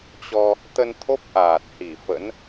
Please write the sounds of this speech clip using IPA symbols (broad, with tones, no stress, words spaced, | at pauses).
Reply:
t͡ɕɔ˧ | t̪ə˧nt̪ʰo˦˥p̚ ʔaː˨˩t̚hi˧˩fə̰˧˥n